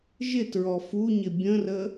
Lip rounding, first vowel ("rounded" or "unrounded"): unrounded